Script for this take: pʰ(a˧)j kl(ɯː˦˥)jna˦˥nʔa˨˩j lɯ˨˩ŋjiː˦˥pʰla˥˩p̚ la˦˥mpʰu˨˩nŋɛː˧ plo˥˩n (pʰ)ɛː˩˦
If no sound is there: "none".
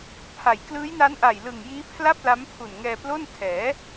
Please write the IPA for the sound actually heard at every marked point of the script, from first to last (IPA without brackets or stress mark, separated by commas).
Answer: a˩˦, ɯː˦˥, tʰ